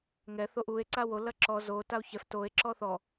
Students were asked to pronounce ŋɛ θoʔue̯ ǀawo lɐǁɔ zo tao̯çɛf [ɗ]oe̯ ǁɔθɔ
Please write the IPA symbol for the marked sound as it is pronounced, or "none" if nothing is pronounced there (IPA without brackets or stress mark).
t